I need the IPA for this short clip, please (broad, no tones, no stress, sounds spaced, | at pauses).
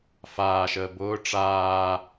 f aː ʃ əː b ʊː ʈ͡ʂ aː